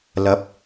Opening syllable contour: rising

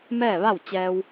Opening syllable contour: falling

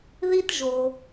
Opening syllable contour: high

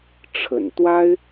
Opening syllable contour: low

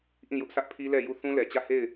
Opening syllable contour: falling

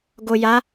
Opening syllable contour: low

